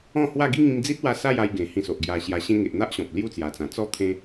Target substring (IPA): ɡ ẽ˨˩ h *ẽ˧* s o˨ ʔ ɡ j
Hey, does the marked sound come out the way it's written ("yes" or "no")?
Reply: no